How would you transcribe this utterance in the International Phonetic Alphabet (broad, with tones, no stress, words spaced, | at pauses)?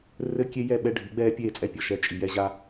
rɘ˦kʲe˦jɛ˦˨ ɓɛ˦ɖʱi˨˦ɡ͡bɛː˦ pʲeː˦˨t͡sʼɛ˦pʲɔ˨ ʃɛ˦ t͡ʃʼi˨jɛ˦ʑa˦